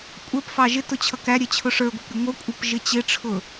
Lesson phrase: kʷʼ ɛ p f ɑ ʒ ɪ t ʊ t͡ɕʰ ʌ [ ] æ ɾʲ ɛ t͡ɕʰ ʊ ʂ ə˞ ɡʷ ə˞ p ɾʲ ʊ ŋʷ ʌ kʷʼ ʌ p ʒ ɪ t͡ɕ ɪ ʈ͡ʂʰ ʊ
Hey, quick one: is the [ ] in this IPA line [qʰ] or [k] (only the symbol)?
k